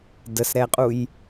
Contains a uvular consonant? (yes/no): yes